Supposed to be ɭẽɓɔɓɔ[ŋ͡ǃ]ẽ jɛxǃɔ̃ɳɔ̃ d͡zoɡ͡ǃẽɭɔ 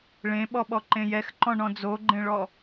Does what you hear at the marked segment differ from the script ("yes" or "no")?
yes